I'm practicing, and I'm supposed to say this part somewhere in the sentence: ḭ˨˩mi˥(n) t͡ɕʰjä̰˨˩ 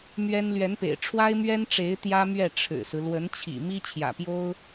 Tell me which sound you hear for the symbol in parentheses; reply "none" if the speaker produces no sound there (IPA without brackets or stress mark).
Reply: none